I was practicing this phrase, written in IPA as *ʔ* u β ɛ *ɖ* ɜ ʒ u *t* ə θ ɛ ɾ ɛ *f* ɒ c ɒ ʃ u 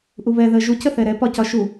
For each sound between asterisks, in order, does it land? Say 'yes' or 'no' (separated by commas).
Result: yes, no, no, no